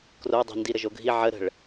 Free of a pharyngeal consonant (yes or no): no